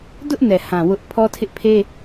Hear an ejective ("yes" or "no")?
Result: no